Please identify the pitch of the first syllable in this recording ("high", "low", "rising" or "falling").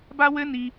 high